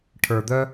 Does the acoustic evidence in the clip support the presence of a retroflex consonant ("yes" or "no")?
yes